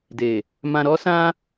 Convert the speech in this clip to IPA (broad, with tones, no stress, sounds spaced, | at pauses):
d e˨ | m ã˧ ɾ ɔ˦ s ã˦